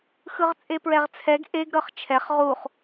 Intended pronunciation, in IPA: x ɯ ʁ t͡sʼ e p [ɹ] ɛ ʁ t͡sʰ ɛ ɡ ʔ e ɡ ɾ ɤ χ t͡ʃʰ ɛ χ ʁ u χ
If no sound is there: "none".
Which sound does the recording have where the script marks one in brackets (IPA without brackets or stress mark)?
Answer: ɹ